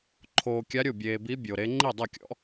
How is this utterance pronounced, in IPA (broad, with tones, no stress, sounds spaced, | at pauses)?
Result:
ǃʰ oː˧ kʲ a˧˥ ɾʲ o˥˩ bʲ eː˧ b i˧˥ bʲ o˧ ɾ e˧˥ ŋ͡ǃ i˥˩ dˤ e˥˩ kʲ ɔ̰˧˥